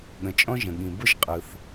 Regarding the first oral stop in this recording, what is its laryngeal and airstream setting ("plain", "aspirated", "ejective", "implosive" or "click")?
implosive